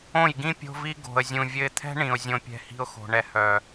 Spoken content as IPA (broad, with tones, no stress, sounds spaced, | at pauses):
õ˦˨ j ɡ ĩ˦ pʲ o̤˧ v i˧ ɡ o̤˨ ə̯ zʲ ũ˨ vʲ ɘ˧ ɪ̯ t̪ʰ ɛ̤˦ ɳ ĩ˨ ʊ̯ zʲ õ˧ pʲ ɛ̤˧ h i̤˦ ʊ̯ x o̤˨ ɳ ɛ˧ h œ˨